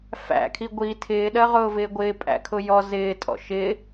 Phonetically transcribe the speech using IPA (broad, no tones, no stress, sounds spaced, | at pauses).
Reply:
f æ̰ kʰ i ɡʷ i tʰ ɪː ɗ ɜ ʁ ʊː v ɪː ɡʷ ɪː pʼ æ̰ kʰ ʊ j ɔ z ɪː tʼ ɔ̰ ʃ ɪ